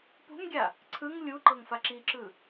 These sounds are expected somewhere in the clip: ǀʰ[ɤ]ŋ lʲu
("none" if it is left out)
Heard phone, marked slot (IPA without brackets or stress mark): ɯ